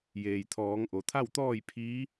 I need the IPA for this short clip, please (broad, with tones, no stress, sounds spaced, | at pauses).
j eː˩ j t̪ʰ ɔː˩˧ ŋ ʔ o˩ t̪ʰ a˥˨ w t̪ ɔː˥˨ j pʰ iː˧˥